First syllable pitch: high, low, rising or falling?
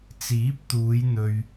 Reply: rising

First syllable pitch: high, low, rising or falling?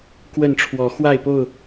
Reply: falling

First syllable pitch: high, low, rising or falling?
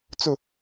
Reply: falling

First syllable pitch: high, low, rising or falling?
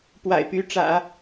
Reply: low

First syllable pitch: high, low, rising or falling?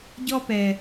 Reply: high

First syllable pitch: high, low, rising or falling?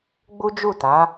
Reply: high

